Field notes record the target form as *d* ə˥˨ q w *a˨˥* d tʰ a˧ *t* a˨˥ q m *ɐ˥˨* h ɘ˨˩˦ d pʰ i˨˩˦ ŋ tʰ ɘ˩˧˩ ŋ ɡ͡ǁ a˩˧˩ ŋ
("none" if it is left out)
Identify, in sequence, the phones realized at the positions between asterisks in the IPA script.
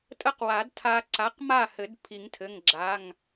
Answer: tʼ, a˨˩˦, ǀ, a˥˨

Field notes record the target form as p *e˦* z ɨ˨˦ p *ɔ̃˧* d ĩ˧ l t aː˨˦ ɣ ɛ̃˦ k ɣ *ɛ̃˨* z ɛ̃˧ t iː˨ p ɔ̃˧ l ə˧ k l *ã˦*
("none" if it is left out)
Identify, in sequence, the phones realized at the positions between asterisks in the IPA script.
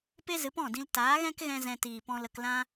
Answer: e˦, ɔ̃˦˨, ɛ̃˧, ã˦

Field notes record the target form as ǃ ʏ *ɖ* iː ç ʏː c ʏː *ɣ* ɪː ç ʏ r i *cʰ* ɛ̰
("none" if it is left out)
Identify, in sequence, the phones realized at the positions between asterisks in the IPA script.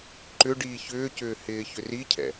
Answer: ɖ, h, cʰ

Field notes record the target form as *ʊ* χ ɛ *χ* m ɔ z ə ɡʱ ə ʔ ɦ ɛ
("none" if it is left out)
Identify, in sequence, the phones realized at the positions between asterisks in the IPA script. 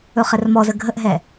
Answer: ɵ, r

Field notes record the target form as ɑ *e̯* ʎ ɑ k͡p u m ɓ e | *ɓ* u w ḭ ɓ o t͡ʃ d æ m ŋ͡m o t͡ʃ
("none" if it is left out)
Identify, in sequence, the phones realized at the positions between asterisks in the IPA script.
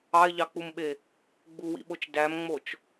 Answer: e̯, ɡ͡b

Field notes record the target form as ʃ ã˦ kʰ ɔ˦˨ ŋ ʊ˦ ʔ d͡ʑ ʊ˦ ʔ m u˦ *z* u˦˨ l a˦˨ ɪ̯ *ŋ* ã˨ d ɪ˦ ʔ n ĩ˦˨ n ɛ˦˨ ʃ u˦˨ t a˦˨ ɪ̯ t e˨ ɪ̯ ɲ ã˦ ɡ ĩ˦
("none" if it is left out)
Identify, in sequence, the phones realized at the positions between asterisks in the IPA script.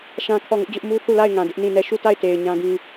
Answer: θ, ŋ

